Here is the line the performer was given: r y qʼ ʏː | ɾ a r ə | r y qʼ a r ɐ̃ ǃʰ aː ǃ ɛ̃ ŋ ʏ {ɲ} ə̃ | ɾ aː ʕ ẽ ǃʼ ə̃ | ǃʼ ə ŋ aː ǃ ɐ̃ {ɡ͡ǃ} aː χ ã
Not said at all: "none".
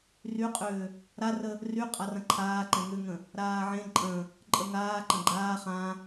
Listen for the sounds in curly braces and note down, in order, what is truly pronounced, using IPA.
ŋ, ɡ͡ǃ

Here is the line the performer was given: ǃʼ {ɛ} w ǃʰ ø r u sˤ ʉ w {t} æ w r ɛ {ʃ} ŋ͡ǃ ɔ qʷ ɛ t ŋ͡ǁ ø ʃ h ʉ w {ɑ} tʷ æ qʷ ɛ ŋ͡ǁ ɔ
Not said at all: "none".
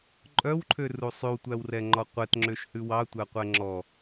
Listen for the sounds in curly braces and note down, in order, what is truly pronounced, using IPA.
œ, tʷ, none, ɑ

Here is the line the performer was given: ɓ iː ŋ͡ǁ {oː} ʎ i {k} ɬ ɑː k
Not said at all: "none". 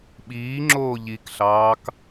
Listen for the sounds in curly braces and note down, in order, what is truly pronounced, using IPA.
oː, k

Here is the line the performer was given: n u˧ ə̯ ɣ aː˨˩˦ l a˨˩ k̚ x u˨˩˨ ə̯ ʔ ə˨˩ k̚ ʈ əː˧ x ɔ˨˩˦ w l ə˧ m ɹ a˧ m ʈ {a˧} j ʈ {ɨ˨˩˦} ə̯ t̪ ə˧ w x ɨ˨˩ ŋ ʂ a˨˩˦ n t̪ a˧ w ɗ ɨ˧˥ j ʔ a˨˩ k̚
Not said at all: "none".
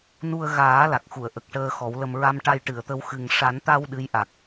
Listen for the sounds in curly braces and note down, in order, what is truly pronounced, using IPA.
a˧, ɨ˨˩˨

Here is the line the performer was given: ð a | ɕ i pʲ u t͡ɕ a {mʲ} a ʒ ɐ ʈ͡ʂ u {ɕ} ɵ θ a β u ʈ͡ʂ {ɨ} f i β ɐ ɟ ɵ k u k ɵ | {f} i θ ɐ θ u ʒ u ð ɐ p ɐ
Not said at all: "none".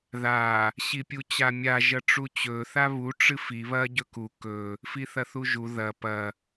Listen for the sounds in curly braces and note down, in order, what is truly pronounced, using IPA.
mʲ, t͡ɕ, ɨ, f

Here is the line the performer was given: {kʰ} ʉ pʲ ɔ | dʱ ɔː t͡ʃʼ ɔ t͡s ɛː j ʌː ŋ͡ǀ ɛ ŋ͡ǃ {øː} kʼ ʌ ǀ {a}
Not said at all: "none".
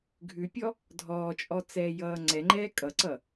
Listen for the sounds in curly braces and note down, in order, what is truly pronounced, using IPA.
ɡʱ, ɛː, ʌ

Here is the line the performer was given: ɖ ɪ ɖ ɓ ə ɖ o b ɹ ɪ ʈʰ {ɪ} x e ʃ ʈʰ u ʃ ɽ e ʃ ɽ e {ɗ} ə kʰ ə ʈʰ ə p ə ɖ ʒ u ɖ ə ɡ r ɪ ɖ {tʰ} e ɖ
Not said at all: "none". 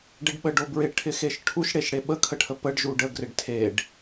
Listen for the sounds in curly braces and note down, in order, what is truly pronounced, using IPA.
ɪ, ɓ, tʰ

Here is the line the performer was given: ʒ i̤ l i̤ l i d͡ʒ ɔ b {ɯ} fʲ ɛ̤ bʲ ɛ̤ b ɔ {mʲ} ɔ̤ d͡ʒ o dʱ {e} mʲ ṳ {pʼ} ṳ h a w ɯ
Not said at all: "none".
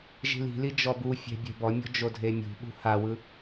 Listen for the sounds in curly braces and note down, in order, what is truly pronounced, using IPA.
u, mʲ, e, ɓ

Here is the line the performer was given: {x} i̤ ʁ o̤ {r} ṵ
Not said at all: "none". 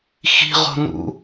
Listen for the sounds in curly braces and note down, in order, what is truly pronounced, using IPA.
x, n

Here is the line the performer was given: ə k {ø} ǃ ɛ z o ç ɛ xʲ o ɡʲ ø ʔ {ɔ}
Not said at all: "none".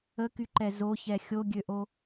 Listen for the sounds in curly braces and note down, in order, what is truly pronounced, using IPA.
y, o

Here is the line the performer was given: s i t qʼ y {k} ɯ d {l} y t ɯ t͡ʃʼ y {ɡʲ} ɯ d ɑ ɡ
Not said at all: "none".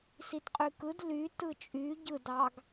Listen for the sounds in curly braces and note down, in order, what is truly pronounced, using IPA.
k, l, ɟ

